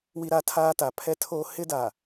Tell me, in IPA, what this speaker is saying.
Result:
wi˦ ɾa˦tʰaː˦ta˨ pʰɛ˦tʰoː˦ hɪ˦da˨

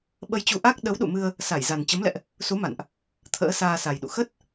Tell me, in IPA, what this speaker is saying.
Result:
ɓə˧jt͡ɕu˧ ʔa˦˥k̚ ɗə˨˦wɗṵ˧˨mɨ˧ə̯ | sa˧˩jza˨˩n t͡ɕə˨˦mlɛ̰˧˨ʔ | su˨˦ma̰˧˨nʔ | t̪ʰə̰ː˧˥saː˧sa˨˩jɗṵ˧˨ xə˦˥t̚

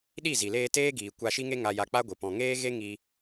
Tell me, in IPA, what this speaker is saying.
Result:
ɗi˦˨zi˨leː˧ teː˦ɡiː˨ kʷa˧ʃi˦ŋe˦ ŋa˧ja˧k͡pa˦ɡʷɨ˨ pɔ̃˨ŋeː˦ɣe˦ ŋi˧

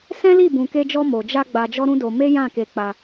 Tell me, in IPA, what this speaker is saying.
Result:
sɛ̃˦li˦˨ bũ˨ke˧d͡ʒɔ˧ mo˨d͡ʒa˧ ɡ͡ba˧d͡ʒɔ˦ɾũ˦do˧ me˦jã˦˨ke˧ k͡pa˧

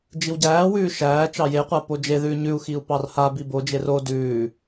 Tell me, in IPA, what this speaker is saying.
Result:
d͡ʒiwɟæːwʉː ʃæː t͡ʃɑjeqʷa pod͡ʒeðʉː ɲʉu̯xiu̯ pɑrhabi bod͡ʒer o dʉː

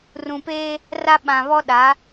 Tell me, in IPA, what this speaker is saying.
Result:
rũ˨peː˦ | ra˦ ɓã˨βɔ˦ɗa˨˦

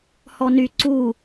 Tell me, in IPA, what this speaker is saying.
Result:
hɔny ǀu

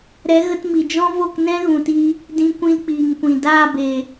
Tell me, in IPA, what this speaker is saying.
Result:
ɾɛ˨˦ɣə˧tmi˨d͡ʒɔ̃˦ vo˦˨knɛ̃˦ɣũ˨tiː˧ | dĩ˧kʷĩ˧lk͡piː˨ŋkʷĩ˨ daː˦˨beː˨

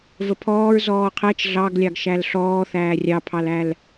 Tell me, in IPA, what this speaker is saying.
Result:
vəpʰɔːɹ zɔːqʰɛt͡ʃ ɮɑɡlʲɑɡʃæl ɬɔː θæːrʲɑpʰɑlæl

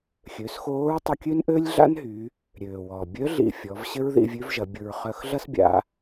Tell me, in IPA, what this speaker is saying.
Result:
xʲø˩˧sxoː˧˥ɹtˤʊ˧ kʲø˥nʔø˥lʲɮa̰˥nɦy˩˧ | ɾʲøː˩wɔ˩bʲœ˧˥ ɮḭ˧fʲɔ˩˧v ɕɪ˥ɹðḭ˧vʲø˧˥v ʒɐ˩˧bʲʊ˧ɹ χœ˧xɮɐ˥s bʲa̰˧˥

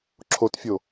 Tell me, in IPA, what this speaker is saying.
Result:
ǁʰotfʲo

